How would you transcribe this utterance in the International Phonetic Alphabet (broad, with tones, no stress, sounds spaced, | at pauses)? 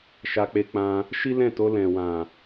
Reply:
ʃ a˧ k͡p e˧ k͡p ã˧ | ʃ i˦ l ɛ̃˦˨ t o˧ l ɛ̃˨ w ã˨